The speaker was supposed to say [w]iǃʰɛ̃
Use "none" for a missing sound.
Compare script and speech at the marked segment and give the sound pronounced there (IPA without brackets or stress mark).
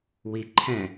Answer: w